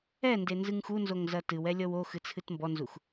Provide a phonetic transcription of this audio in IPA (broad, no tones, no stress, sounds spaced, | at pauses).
ɛ n d e n z ɨ ŋ x u n z o ŋ z ɐ t ɨ w ɛ lʲ ɔ w o x ɨ t͡sʰ ɨ t m b ɔ n z u x